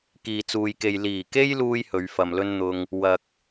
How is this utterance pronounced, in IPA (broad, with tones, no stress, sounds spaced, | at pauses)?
k iː˨ t͡s uː˨ j k e˨ j l iː˨˩ k e˥ j l uː˧ j h ɵ˨˧ ɥ f ɐ˨ m l ɵ˥ n n̪ ʊ˧ ŋ | w ɐ˨ k̚